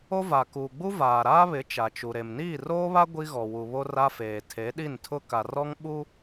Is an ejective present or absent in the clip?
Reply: absent